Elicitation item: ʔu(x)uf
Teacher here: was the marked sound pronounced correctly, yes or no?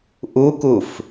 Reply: no